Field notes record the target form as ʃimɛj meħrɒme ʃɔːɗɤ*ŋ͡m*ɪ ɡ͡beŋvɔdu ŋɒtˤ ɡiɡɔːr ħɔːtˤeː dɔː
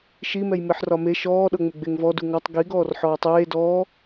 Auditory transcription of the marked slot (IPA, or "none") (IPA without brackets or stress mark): ŋ͡m